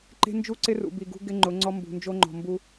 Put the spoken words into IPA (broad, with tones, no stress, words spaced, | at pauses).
ǃe̤˦nd͡ʒu˦ǀɪ˦rṵ˨ bi˨ɡṳ˦ɡɪ˦ ŋ͡ǃʊ˨˦ŋ͡ǀɔ˦ mbṳ˨nd͡ʒo˦ŋ͡ǃɔ̤˨ mbu˦